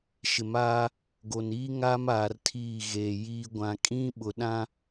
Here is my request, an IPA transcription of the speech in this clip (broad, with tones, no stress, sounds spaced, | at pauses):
ʃ ɪ˨ m aː˦ | ɡ o˨ n iː˦ ŋ aː˦ m aː˨ r tʰ iː˦˨ ɣ e˨ j iː˦ ɡʷ ã˨ kʼ ĩ˦ ɓ ʊ˨ ɗ ã˦